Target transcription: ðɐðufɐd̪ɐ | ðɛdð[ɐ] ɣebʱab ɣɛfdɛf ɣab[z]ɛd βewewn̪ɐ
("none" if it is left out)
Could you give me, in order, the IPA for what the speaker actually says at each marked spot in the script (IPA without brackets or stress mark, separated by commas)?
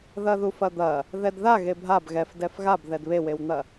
a, ð